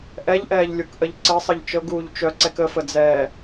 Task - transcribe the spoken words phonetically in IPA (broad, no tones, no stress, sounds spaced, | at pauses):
ʔ ɛ ʎ ʔ ɛː ʎ lʲ u k ʔ ə ʎ ǀ ɘ sˤ ə ʎ t͡ʃ ɤ ɡ uː ʎ t͡ʃ œ ǀ ɛ k ə f ə d͡z ɛː